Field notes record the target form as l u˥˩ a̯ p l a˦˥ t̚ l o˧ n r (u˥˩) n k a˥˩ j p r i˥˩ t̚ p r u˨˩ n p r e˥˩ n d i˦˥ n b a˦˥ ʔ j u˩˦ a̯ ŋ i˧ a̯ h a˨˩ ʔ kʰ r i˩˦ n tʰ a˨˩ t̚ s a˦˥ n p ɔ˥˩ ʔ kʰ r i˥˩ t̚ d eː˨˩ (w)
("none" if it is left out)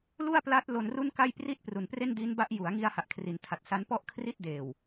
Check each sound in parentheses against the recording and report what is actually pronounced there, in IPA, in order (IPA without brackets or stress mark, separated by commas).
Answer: u˥˩, w